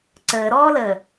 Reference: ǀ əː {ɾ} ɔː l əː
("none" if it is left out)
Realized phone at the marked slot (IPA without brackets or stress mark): ɾ